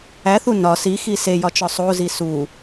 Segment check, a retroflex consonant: absent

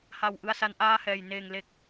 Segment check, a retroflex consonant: absent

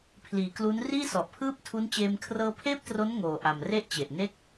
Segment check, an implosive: absent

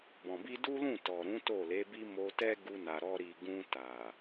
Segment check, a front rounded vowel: absent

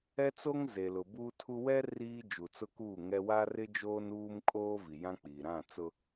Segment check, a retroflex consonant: absent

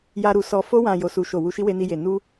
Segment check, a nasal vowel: present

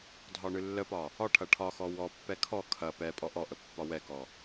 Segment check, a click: absent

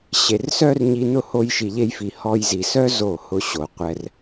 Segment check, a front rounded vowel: present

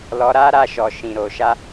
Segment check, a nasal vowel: present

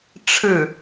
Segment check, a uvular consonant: absent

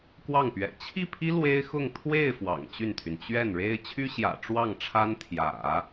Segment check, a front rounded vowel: present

